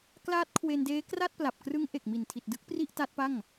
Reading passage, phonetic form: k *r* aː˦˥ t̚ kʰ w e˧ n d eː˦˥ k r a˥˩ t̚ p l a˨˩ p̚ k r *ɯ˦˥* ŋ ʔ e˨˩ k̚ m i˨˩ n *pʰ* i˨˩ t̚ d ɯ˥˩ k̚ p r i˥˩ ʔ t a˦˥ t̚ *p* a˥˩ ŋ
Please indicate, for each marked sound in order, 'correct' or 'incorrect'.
incorrect, correct, incorrect, correct

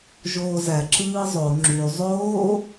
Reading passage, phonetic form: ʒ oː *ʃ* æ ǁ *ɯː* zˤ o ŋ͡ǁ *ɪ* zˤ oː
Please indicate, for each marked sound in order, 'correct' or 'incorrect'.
incorrect, correct, incorrect

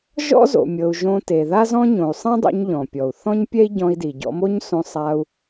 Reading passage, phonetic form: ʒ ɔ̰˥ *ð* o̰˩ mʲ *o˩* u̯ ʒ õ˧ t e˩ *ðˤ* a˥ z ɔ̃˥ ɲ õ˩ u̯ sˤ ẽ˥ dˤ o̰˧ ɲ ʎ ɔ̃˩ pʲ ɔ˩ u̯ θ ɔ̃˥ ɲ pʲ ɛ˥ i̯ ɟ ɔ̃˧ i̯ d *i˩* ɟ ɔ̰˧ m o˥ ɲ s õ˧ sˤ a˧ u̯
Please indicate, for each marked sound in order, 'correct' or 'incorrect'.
incorrect, incorrect, incorrect, correct

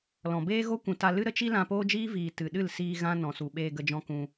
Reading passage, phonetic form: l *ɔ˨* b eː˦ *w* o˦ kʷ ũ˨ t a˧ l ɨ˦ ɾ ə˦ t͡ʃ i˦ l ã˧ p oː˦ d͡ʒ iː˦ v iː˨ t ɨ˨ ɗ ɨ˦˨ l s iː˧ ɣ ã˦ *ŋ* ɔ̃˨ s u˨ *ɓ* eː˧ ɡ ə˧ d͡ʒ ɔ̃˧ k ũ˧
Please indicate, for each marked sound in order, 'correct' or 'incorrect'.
incorrect, incorrect, incorrect, correct

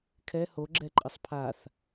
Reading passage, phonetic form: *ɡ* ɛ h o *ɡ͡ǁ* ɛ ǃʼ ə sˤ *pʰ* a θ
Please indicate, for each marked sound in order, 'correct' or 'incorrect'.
incorrect, correct, correct

